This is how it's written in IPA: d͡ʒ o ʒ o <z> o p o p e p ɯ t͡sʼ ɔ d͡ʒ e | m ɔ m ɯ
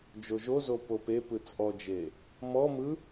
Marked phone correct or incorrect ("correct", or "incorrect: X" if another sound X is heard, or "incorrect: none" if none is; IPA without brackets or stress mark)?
correct